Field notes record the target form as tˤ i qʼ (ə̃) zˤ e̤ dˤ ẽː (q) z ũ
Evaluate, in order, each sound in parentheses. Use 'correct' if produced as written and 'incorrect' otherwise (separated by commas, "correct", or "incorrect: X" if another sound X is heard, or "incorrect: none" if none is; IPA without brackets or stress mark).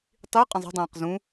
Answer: correct, correct